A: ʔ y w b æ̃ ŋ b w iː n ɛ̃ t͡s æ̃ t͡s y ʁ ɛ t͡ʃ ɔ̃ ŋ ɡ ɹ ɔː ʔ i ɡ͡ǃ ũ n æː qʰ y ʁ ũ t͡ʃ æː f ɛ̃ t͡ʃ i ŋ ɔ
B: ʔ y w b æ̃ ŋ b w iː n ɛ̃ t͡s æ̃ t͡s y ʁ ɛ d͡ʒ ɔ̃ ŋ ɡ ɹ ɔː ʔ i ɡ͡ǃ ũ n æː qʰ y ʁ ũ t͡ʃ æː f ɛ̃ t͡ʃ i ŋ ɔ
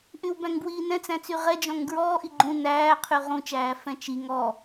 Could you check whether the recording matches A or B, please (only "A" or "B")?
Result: B